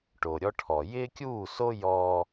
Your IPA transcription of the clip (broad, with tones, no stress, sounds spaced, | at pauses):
ʈ o˨ ɾʲ ɔ˦ ʈʰ ɔ˨ j ɪː˦ kʲ uː˦˨ s o˦ j ɔː˦